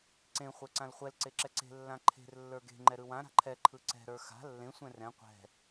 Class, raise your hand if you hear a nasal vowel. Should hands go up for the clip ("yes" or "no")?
yes